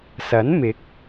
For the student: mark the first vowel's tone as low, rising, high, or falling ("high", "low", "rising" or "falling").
rising